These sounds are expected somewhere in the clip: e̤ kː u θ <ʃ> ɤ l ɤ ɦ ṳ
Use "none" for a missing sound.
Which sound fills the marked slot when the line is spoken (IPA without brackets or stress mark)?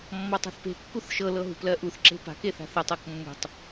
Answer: ʃ